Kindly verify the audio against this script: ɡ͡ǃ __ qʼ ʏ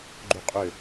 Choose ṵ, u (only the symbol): u